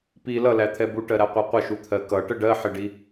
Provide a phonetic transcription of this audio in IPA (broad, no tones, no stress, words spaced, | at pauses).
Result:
pi lʌlæt̪ʰɛ buʈɜɾæqʷɜ qʷəʃut̪ʰɜ kʌʈə ɖɜħɪɖi